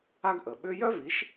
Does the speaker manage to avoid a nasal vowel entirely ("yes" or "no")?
yes